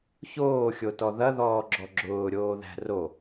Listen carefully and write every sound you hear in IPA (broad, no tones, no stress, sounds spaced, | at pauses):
ç oː xʲ o t ɔ ð ɐ ð ɔː ɡ͡ǁ ɔ ɡ͡ǁ ʊː ɾʲ oː ð æ̤ r o